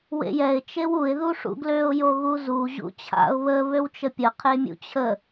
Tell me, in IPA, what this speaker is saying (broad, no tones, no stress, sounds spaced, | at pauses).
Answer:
w ḛ j ɛ ɪ̯ t͡ʃ e w u ɪ̯ ð u ʂ ṵ ɡ l ø ʊ̯ j o ɣ u z u ʑ ṵ t͡ɕʰ a̰ ʊ̯ β ə β ø w t͡ʃ ə pʲ ə qʰ e mʲ ṵ t͡ɕʰ ə